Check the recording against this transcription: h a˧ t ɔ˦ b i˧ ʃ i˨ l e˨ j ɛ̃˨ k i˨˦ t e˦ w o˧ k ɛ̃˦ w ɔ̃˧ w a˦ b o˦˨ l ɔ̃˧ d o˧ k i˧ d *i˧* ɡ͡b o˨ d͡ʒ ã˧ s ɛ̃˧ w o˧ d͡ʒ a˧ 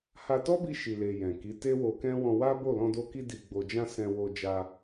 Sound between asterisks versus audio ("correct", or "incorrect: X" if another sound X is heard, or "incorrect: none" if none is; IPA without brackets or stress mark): incorrect: i˨